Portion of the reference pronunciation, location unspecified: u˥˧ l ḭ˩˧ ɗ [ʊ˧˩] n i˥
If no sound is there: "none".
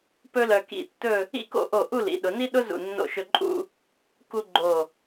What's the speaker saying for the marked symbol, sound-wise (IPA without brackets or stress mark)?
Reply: ʊ˩˧